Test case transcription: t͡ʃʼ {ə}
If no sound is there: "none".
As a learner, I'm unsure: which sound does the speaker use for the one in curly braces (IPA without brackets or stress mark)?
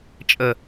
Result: ə